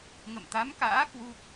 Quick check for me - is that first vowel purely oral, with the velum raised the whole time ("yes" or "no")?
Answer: yes